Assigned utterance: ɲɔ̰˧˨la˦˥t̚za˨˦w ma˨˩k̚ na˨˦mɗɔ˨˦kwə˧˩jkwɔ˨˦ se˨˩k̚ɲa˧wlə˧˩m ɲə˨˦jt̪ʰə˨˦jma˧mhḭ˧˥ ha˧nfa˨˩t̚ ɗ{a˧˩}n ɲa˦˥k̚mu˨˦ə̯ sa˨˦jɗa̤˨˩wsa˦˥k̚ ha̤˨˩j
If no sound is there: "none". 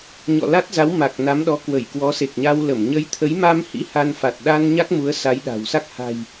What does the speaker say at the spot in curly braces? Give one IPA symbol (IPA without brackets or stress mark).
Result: a˧